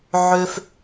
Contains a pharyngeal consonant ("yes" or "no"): yes